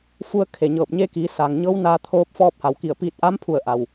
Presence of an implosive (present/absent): absent